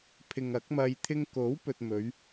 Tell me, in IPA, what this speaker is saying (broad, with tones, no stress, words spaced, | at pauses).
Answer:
pʰɪ˨ŋɐ˨˥k̚mɐ˧j t̪ʰɪ˧ŋko˨˥wpɵ˨t̚ mɵ˨˧ɥ